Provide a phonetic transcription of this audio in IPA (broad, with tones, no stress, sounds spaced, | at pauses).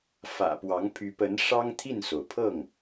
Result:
f ä̰˨˩ p w ɑ˧˥ ŋ pʰ y˧˥ p ə˧˥ n ʂ ɑ˥ ŋ t̪ʰ i˥˩ n s o˩ ʊ̯ pʰ ɤ˥˩ ŋ